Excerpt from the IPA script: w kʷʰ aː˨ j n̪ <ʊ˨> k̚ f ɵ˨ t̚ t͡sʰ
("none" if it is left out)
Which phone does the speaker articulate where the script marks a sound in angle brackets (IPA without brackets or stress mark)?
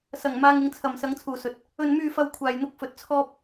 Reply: ʊ˧